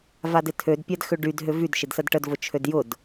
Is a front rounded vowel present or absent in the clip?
present